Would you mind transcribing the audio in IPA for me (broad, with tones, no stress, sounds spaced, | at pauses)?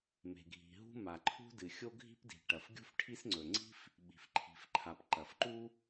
m e̤˩ ɡʱ i̤˩ ɦ ṳ˥ m a˩ ǃʰ ṳ˥ d ɨ˩ xʲ o˥ ɡʱ i̤˥ p d i̤˩ ʈ ɐ˩ f ɡʲ ṳ˥ f ʈʰ i˥ s ŋ͡ǀ ɵ˩ ŋ͡ǀ i̤˥ f | ɓ i̤˩ f ǃʰ i̤˩ f ǃʰ a˩ p ǃ ɐ˩ f ǃ u˥